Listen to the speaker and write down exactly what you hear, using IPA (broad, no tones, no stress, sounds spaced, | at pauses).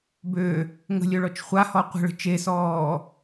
b ø | ŋ ə̤ lʲ œ ɭ ɔ t͡ʃ χʷ a h ɔ qʷ ə̤ ɭ ə̤ t͡ʃ e s ɔː